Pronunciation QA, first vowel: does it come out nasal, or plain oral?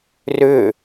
oral